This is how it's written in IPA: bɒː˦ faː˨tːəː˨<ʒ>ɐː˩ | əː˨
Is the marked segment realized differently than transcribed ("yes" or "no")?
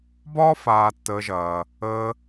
no